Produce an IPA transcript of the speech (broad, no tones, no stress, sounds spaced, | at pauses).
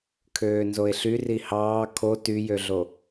kʰ øː n z o e̯ ɬ y r i h ɑː kʰ o t y j ø ɮ o